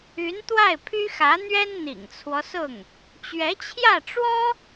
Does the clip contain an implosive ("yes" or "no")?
no